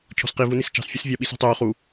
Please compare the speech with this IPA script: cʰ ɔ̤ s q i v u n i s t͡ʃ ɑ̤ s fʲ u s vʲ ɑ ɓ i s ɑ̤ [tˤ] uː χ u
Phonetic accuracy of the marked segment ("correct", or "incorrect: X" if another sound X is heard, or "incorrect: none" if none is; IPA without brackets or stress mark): correct